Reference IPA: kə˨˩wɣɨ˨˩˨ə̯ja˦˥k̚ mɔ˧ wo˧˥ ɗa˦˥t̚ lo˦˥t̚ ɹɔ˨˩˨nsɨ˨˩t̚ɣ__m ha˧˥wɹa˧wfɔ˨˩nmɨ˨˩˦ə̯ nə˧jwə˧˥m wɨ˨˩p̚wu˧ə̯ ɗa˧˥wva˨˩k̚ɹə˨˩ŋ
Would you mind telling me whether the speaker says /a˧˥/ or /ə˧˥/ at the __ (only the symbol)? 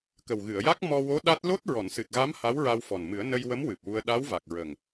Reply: a˧˥